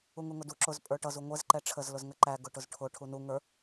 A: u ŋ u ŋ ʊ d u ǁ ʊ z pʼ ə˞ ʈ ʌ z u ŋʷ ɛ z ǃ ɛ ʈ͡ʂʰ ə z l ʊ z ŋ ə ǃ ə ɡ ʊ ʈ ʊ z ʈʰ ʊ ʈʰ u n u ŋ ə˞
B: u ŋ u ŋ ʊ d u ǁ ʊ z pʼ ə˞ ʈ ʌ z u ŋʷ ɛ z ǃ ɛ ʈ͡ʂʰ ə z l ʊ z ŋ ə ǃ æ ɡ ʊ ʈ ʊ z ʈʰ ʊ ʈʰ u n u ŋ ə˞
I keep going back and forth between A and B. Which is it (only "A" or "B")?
B